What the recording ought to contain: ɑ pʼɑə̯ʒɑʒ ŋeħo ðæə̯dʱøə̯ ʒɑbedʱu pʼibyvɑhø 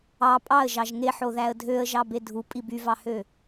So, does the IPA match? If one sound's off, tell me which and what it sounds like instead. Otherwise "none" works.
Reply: none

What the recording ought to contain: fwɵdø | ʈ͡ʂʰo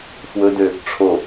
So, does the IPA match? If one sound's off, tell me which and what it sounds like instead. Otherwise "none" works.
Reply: none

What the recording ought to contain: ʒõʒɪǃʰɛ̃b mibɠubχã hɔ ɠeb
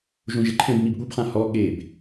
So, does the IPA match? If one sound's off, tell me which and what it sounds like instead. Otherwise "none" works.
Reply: none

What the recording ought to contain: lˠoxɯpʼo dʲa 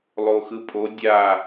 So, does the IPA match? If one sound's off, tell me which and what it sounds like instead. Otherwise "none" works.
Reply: none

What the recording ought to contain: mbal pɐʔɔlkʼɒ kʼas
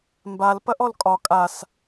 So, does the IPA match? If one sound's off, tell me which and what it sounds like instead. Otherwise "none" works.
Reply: none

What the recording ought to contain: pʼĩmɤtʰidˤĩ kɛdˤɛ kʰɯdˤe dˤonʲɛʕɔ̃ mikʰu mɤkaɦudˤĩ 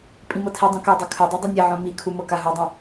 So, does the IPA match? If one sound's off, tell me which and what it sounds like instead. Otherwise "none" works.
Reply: none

